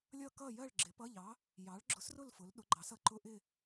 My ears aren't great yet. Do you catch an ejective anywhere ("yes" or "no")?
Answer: no